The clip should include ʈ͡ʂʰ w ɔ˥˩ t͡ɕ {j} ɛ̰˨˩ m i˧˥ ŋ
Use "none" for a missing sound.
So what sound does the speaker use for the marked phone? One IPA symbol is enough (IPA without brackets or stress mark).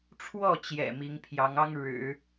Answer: j